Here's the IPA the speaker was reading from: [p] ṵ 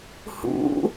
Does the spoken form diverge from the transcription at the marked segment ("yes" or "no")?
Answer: yes